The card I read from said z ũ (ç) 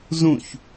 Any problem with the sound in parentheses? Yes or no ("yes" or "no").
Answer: no